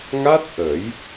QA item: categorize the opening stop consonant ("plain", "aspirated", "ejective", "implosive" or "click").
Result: plain